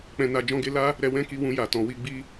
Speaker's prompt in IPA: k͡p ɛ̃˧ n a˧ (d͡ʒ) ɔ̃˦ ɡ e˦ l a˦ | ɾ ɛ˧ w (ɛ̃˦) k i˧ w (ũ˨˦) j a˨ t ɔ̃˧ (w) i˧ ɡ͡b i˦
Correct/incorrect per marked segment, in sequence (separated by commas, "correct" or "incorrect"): correct, correct, incorrect, correct